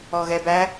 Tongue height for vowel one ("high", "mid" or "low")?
mid